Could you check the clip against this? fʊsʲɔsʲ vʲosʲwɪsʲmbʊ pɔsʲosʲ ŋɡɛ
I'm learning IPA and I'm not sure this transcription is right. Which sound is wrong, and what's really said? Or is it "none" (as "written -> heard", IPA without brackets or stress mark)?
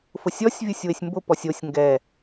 none